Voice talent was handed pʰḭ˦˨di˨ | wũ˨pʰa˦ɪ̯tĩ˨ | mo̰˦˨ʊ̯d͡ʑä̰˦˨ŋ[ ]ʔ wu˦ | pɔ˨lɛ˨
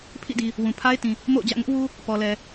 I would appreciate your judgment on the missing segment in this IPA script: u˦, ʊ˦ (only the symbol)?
ʊ˦